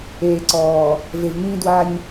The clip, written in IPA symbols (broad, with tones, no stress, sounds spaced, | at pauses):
eː˨ ǀ ɔː˨ | v e˨ v ŋ ĩː˦ d w a˦ ɲ